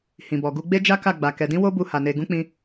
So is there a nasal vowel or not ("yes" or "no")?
yes